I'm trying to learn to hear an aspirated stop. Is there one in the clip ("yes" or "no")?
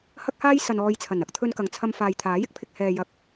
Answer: yes